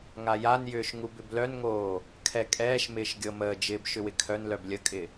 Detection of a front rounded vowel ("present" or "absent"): present